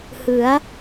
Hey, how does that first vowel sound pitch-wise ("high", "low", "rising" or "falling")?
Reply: rising